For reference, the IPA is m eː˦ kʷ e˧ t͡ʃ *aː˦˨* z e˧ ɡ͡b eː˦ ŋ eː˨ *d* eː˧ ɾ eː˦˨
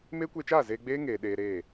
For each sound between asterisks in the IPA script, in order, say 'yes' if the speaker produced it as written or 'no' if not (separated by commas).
yes, no